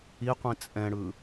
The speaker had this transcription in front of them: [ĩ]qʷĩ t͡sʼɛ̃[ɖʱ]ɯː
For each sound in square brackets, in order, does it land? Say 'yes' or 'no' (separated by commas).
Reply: no, no